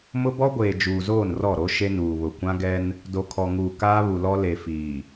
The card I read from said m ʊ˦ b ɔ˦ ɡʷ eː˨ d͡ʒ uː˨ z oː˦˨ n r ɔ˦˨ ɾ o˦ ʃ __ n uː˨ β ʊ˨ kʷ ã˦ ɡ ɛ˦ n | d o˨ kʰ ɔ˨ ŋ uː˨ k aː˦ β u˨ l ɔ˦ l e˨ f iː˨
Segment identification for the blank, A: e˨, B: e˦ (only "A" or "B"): B